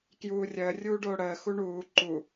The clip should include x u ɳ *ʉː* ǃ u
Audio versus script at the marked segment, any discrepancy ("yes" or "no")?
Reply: yes